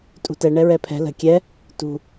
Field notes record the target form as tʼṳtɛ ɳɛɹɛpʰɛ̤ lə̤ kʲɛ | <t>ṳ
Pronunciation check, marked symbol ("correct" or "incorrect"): correct